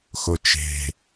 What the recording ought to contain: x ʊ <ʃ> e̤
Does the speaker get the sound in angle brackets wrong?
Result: yes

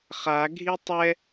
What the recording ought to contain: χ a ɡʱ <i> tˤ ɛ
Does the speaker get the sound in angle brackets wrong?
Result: no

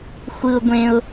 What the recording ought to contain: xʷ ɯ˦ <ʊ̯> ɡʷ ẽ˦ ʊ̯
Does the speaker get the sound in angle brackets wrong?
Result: no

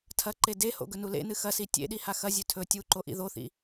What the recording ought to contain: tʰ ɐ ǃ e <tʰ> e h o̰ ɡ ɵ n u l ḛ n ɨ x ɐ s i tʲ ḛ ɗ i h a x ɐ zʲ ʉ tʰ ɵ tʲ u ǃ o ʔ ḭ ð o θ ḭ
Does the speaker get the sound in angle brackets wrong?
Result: yes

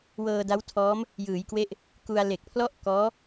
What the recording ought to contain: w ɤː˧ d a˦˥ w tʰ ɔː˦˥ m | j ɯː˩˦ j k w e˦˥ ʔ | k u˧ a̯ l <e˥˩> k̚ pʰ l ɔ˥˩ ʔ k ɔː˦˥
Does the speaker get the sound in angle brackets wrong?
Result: yes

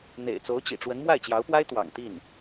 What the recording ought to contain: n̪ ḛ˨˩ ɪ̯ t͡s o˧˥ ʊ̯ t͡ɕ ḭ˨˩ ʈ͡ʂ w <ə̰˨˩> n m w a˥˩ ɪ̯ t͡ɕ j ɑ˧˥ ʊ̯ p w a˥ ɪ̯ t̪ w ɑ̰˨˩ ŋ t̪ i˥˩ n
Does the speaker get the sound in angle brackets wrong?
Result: yes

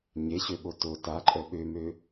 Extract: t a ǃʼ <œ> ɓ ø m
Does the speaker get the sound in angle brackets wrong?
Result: no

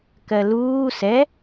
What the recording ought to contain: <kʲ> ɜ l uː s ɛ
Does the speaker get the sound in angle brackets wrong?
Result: yes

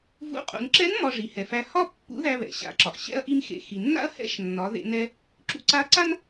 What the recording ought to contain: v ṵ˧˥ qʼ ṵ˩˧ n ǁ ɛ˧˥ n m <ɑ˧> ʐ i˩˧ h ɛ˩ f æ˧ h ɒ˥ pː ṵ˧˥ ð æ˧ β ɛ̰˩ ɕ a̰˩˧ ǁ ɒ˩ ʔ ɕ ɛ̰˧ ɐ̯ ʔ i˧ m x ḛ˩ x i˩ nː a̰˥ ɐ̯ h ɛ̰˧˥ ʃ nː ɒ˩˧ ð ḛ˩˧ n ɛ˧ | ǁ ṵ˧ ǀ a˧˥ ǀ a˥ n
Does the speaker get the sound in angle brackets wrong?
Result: yes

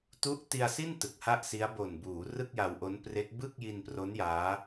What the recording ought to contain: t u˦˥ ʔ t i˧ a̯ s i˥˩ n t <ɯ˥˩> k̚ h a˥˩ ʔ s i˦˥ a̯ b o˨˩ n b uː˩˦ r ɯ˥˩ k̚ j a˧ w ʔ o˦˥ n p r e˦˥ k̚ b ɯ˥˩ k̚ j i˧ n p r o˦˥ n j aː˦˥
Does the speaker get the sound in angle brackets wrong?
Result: yes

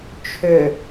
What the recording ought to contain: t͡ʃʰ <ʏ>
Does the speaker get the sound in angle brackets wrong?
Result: no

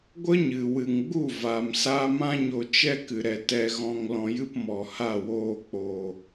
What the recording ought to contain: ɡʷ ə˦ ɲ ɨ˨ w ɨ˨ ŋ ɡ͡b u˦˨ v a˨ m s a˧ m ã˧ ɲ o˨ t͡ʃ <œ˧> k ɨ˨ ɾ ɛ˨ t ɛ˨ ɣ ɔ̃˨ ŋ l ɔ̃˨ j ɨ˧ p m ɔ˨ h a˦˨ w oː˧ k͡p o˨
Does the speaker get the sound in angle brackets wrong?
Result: yes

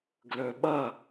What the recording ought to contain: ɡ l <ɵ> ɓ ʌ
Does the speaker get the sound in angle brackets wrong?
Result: no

